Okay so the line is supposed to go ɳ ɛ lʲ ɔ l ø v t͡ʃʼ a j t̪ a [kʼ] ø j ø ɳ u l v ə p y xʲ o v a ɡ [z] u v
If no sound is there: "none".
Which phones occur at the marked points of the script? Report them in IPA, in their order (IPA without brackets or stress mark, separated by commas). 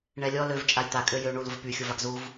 kʼ, z